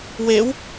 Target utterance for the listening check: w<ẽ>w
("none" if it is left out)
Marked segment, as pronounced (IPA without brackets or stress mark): e